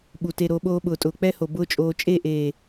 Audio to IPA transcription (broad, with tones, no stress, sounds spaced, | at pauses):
ɓ u˨ t e˧ ɾ o˧ ɓ oː˦ ɓ ʊː˨ tʼ ʊː˨ k͡p ɛ˦ h o˨ b ʊː˦ t͡ʃʼ oː˧ t͡ʃʼ e˦˨ ʔ eː˨